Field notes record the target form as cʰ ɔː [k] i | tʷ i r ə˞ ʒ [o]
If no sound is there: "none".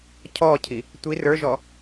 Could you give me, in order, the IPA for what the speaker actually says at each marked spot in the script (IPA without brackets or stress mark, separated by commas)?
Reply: cʰ, ɔ